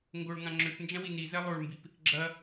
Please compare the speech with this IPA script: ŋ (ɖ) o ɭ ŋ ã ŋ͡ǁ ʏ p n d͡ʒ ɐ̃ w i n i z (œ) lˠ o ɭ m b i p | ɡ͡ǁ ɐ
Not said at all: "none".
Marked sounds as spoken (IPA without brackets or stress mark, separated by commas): ɡ, ɛ